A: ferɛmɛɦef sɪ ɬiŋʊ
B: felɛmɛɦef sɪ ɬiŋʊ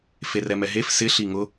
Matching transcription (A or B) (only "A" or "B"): A